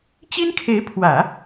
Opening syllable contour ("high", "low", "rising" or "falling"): high